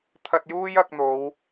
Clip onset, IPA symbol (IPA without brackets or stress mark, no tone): t̪ʰ